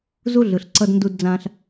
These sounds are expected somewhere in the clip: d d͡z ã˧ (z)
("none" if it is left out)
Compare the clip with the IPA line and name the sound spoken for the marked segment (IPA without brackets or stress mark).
ɬ